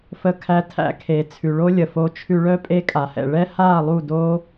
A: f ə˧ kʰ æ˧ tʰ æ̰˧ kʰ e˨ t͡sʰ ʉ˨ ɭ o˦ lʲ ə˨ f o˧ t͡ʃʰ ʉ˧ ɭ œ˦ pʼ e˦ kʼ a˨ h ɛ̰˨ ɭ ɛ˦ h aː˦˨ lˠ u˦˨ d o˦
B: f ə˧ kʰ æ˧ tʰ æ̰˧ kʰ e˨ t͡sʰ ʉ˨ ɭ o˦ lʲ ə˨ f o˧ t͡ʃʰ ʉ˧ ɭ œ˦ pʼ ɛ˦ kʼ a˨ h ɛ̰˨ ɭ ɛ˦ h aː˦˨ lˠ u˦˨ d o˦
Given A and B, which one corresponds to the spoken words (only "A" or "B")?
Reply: A